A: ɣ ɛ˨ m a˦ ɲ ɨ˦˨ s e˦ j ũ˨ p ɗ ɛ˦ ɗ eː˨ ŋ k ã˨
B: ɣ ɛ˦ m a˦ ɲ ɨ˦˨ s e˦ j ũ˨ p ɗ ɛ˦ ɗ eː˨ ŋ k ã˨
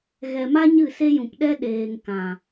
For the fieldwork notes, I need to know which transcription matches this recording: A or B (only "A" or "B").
A